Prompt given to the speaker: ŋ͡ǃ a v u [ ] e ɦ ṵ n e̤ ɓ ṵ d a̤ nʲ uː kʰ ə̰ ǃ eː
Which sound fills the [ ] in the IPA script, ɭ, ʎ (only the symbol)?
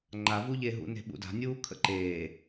ʎ